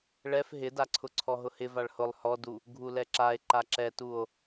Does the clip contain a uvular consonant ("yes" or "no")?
no